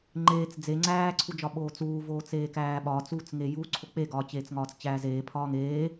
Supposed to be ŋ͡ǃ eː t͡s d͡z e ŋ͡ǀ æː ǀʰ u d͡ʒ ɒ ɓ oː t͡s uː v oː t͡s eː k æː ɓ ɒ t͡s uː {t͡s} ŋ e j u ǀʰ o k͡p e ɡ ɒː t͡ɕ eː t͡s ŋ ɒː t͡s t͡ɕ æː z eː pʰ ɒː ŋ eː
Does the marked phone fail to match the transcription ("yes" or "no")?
no